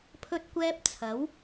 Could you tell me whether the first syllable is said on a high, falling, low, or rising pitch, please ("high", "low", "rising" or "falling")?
high